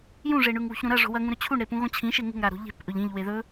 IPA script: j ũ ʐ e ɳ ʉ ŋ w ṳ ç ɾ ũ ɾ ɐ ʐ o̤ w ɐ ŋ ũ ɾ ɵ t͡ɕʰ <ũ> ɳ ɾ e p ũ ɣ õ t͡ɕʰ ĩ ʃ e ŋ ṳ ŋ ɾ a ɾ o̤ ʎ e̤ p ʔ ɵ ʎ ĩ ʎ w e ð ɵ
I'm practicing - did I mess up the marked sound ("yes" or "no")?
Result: yes